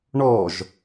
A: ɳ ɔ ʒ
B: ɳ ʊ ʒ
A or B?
A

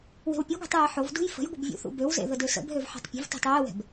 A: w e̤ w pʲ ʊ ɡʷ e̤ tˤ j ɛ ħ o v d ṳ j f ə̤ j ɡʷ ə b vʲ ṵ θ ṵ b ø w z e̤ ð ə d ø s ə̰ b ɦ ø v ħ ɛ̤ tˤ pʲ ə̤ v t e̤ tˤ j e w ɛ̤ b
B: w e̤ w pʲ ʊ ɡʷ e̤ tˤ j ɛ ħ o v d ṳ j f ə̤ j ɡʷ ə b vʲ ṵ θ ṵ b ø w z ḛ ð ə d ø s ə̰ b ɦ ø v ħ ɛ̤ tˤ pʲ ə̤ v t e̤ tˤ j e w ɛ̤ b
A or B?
B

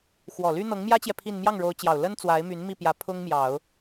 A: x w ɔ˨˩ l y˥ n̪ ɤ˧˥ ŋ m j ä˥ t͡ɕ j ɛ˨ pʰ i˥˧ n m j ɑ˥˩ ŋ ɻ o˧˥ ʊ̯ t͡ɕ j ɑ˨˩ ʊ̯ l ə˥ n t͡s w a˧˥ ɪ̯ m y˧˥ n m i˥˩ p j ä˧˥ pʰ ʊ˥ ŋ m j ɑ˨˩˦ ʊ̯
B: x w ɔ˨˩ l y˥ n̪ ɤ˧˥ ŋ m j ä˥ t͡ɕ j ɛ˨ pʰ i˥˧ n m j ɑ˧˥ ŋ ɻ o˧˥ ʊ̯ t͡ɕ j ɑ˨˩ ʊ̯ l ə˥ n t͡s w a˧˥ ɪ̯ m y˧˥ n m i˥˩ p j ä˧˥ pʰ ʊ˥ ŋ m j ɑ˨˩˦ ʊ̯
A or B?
A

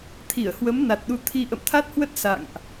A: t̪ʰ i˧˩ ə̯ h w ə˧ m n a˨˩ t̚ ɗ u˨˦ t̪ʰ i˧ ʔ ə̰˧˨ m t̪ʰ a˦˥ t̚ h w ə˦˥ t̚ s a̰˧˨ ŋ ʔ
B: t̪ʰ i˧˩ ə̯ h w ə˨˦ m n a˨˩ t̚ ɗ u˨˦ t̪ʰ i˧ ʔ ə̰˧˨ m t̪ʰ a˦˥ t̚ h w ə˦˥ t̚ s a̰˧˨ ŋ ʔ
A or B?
B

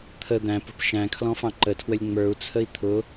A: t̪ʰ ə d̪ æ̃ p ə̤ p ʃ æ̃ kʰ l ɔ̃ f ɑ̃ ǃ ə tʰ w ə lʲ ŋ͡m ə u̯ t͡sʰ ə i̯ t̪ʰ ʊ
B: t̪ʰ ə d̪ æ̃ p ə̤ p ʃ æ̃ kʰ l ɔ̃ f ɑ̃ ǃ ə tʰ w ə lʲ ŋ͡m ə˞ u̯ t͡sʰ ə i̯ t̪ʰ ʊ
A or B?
B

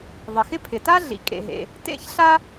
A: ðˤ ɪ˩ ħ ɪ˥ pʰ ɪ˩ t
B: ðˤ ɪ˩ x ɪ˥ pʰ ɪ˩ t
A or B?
B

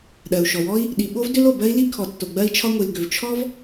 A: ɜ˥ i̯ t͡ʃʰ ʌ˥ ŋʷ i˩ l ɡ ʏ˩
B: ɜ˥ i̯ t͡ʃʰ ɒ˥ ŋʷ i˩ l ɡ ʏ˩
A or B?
B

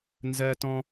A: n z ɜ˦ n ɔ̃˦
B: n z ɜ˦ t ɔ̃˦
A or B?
B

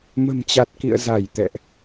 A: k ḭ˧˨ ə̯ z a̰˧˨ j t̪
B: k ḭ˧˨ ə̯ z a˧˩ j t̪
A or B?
B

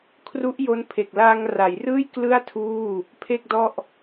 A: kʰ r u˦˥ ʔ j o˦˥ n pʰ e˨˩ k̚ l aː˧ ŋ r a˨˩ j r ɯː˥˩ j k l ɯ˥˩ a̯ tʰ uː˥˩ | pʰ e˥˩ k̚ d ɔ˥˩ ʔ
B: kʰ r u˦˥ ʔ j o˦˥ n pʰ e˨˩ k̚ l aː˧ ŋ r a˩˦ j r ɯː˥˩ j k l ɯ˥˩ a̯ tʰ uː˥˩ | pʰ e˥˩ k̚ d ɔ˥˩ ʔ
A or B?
B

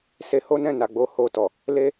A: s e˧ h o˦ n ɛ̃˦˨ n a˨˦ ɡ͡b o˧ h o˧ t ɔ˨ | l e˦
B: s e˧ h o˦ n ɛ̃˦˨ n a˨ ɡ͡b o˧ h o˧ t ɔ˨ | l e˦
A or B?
B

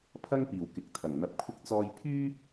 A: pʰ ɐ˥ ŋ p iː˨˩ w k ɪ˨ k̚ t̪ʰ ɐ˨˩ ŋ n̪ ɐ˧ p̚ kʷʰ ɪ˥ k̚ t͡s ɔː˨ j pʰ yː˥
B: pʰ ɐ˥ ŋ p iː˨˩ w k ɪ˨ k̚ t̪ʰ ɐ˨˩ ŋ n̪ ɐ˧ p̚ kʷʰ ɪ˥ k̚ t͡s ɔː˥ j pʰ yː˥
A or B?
B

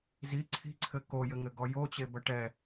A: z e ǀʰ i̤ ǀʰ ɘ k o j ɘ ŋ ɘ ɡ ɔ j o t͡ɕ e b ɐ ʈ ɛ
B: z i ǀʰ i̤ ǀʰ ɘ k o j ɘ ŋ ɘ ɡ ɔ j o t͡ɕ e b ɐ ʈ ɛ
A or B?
B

